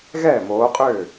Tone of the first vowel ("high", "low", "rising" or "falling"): falling